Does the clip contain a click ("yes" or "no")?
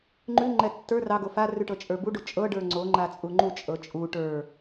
yes